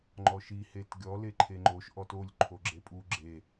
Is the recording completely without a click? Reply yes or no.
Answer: no